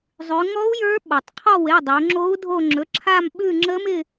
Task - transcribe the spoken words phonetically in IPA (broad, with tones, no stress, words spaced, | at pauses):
zˤʉ˩˧ŋɔ˧˥u̯ jə˞˧˥ ɓɔ˩tˤqʰɔ˦˨we˩˧˩ dˤo˩˧ŋ͡ǁo˧˥u̯dʱo˦˨ ŋ͡ǁɵ˩˧˩ǁʰa˦˨mɓʉ˦˨ ŋ͡ǁə˧˥mɪ˦˨